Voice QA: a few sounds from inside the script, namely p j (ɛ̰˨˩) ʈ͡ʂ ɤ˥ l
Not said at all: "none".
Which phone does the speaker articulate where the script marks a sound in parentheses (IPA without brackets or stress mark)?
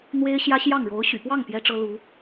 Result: ɛ˥